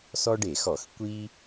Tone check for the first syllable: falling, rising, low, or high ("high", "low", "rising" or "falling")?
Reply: high